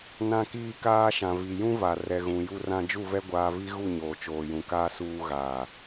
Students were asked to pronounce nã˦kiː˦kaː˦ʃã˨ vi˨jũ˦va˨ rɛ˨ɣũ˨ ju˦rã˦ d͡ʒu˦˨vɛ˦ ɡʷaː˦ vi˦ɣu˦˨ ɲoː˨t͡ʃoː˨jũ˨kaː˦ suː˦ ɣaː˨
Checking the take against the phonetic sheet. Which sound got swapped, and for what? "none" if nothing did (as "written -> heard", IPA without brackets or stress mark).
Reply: none